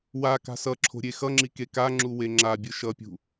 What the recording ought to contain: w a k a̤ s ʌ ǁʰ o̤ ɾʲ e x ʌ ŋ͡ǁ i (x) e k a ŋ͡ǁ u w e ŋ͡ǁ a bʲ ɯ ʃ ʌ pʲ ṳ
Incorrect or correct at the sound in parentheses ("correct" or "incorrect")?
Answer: incorrect